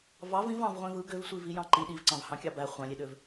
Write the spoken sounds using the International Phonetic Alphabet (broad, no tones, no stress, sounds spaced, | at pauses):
v ɑ v ĩ v ɑ̃ v ʁʷ ẽ v ɯ ɡ ø v sʷ i v i j ɑ̃ ǃ i ɗ i v ǀ ɑ̃ v h ɑ̃ kʲ ɑ b æ χʷ ɑ̃ lʲ e ɗ ø v